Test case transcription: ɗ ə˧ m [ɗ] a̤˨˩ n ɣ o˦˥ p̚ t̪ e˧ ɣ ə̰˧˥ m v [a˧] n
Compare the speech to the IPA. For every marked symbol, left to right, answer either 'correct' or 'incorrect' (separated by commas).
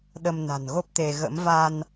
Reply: incorrect, correct